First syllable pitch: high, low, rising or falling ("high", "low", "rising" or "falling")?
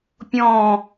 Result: falling